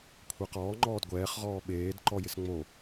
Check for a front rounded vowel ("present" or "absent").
absent